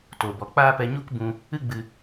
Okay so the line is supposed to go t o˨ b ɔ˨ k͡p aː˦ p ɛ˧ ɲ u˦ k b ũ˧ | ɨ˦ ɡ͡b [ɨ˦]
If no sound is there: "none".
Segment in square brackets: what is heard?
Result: ɨ˦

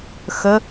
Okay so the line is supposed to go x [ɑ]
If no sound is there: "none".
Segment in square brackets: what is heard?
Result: ə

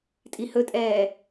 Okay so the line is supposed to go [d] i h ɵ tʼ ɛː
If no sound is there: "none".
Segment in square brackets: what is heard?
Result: tʼ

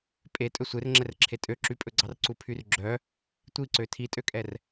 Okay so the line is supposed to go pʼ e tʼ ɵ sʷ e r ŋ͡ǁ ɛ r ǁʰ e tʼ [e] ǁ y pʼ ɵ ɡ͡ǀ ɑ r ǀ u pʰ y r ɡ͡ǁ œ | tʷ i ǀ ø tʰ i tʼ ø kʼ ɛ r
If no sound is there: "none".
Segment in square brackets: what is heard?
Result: ø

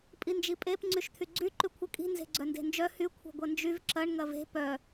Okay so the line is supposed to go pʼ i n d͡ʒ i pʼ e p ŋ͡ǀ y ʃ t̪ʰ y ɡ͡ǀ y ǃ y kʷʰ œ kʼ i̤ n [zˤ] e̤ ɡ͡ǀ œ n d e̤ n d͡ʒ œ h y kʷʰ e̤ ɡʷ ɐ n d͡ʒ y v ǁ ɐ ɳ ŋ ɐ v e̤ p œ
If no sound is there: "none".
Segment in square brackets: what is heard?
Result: z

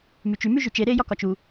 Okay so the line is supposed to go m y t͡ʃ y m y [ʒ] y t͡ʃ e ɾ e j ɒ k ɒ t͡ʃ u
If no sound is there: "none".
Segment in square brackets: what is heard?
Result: ʒ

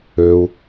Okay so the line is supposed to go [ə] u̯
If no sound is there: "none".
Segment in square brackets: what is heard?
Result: ø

